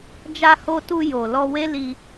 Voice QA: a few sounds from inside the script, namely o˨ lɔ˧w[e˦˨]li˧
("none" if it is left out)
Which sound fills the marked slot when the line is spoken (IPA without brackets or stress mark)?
e˦